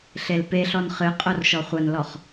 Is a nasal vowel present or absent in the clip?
absent